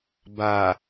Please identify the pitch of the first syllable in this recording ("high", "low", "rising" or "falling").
low